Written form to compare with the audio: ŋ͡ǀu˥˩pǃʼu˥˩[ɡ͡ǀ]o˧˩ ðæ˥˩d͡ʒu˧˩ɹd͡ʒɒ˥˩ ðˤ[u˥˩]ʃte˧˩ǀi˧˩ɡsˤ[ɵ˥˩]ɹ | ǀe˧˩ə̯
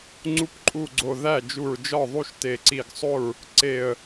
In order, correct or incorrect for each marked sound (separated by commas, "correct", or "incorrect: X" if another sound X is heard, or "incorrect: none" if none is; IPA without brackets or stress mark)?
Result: correct, correct, incorrect: o˥˩